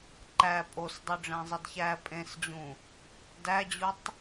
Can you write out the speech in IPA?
ǃ æ pʼ o s dˤ u ɖ͡ʐ æ̃ zˤ i d ç æ pʼ ẽ s d͡ʑ ũ | d æ d͡ʑ u tˤ

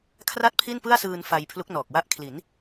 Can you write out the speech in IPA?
kʰ r a˥˩ t̚ pʰ i˥˩ n p ɯ˥˩ a̯ s ɯː˧ n f a˧ j pʰ l u˦˥ k̚ n ɔː˨˩ k̚ w a˥˩ ʔ kʰ l i˩˦ n

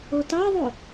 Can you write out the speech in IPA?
o t ɑ ðˤ o

